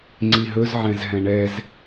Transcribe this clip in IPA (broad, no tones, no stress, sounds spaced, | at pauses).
ŋ͡ǀ i ɦ ɵ z ʕ ɛ̃ z ɦ ɛ̃ ɳ ɛ z